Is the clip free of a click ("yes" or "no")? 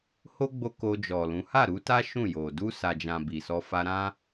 yes